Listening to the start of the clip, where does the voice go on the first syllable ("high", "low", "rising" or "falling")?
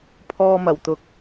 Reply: low